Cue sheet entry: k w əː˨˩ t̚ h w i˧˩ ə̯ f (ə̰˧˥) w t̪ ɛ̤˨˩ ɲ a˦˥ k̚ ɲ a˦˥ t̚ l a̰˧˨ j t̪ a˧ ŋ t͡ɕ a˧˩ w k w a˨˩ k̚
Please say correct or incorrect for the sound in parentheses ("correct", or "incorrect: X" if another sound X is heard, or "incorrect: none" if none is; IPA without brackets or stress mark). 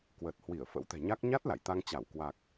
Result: correct